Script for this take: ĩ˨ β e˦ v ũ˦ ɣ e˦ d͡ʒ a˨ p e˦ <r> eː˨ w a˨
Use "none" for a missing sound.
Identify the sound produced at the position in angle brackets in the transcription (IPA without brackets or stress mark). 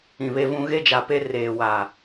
r